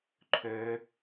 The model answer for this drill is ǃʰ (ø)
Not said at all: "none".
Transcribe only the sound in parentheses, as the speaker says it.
ø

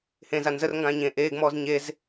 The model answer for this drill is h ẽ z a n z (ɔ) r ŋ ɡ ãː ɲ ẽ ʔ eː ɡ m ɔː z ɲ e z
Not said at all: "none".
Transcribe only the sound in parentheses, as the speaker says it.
ə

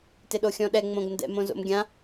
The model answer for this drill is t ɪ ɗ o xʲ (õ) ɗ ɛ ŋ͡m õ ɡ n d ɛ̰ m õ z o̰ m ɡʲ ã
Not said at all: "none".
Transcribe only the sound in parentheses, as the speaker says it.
ɔ̃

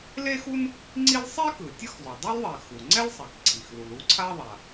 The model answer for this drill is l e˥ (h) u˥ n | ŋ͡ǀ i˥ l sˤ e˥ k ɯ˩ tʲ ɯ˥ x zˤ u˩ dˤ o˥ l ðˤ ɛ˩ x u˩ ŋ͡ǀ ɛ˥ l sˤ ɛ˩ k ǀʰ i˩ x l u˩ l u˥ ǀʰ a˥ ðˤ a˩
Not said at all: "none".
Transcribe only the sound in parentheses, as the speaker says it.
x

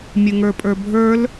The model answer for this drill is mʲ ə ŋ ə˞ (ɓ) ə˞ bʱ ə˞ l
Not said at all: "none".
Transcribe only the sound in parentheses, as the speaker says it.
pʼ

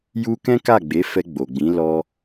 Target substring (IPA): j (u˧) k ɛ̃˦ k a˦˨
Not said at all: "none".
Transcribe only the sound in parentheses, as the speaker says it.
u˧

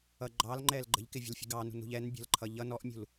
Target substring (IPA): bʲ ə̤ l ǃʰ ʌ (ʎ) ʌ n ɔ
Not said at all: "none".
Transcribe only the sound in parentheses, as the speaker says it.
ʎ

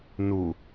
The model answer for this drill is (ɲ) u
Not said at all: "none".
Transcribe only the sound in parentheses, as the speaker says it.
n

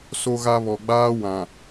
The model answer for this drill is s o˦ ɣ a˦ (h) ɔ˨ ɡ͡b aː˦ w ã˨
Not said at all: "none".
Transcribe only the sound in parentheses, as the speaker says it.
β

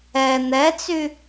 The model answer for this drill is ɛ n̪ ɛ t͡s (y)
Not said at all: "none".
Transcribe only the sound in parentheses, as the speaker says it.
y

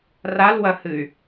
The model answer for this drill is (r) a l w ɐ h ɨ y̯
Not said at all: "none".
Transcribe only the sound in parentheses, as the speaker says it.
r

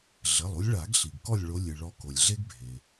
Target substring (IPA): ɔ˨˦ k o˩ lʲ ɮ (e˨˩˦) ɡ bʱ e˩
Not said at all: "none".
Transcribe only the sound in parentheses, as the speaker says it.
e˦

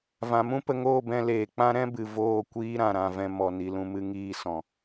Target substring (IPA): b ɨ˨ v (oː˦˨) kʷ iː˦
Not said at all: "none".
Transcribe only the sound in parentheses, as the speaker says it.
oː˦˨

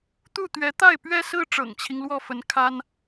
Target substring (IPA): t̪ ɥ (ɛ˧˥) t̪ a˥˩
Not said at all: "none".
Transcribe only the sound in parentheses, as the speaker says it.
ɛ˧˥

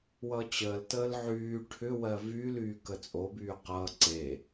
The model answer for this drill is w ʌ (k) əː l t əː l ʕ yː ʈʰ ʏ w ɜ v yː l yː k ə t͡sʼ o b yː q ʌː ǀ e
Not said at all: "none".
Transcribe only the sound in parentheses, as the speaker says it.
t͡ɕ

